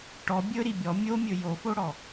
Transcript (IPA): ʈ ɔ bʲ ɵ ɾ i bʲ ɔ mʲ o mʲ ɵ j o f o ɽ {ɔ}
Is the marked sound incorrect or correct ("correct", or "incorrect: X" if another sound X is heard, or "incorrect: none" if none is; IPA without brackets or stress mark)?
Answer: correct